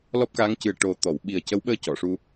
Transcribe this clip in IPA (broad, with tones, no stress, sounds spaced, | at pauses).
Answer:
l ɔ˦˥ p̚ k aː˧˥ ŋ c ɨ˨˩ ə̯ ʈ o˨˩ t̪ ɔ˨˩˨ w ɓ i˨˩ ə̯ c ə˧˥ w ɓ əː˧ c ɔ˨˩˨ ʂ u˧